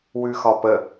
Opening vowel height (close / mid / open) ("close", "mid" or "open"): close